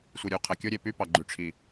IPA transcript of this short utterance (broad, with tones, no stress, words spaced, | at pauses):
sʷi˨ɾʲu˨qʰæ˨kʲo˦ ɾʲe˨py˦pɑ˨ ɡ͡ǃy˨ʈ͡ʂʰi˨